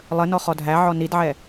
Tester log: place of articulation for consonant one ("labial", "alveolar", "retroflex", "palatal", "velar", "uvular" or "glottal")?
alveolar